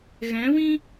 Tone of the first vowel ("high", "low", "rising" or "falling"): rising